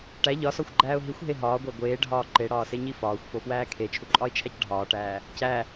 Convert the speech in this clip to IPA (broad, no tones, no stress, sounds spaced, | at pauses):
ʈ æ ʎ ɒ s ɒ xʷ ɡ͡ǃ æː ʊ̯ ɦ i xʷ ɦ e ɦ ɒː ɡʷ æ ɡʷ eː ɖʱ ɒː ǃ e ɽ ɒː s e ɲ i f ɒː xʷ f o f w æː kʰ e t͡ʃʰ u ǃʼ ɒ ɪ̯ t͡ʃʰ æ c ɖʱ ɒː ʈ æː | c æ